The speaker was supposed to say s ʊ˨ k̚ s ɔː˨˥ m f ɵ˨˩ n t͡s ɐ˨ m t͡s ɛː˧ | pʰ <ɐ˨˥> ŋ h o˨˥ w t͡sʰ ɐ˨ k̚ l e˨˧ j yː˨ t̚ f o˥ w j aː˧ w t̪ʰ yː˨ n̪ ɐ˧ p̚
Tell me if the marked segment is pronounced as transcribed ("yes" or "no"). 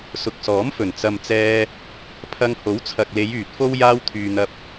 no